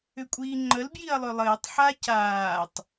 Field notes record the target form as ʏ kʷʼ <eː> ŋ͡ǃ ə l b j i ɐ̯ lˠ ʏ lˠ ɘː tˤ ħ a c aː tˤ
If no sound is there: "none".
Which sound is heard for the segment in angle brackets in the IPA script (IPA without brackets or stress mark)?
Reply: iː